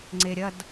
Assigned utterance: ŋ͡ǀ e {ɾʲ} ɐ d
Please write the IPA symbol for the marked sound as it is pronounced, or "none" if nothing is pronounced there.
ɾʲ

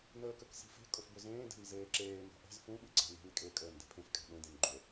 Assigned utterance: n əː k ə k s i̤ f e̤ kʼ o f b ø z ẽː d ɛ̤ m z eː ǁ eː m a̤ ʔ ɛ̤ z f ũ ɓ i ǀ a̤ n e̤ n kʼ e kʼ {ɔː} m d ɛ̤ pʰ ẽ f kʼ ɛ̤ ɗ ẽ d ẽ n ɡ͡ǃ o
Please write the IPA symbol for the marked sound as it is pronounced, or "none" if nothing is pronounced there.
əː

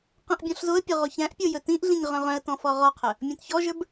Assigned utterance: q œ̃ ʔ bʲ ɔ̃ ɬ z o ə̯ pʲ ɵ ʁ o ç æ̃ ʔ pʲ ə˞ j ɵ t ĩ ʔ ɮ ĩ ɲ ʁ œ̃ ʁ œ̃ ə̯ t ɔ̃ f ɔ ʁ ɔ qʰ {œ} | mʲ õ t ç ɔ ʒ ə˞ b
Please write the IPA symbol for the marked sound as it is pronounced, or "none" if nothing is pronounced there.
œ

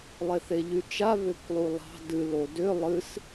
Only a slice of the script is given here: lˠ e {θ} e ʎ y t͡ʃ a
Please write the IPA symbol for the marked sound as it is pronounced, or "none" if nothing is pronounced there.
θ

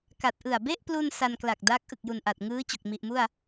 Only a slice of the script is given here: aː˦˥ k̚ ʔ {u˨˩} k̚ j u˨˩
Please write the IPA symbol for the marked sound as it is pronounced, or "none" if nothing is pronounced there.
ɯ˨˩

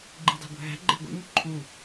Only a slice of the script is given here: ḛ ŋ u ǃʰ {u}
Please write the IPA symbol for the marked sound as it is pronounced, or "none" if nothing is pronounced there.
u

